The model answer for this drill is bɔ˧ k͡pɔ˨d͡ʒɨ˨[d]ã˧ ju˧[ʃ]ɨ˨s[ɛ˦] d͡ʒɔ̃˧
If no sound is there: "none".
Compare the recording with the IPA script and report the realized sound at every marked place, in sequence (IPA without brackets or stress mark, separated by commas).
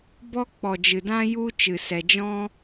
d, t͡ʃ, ɛ˨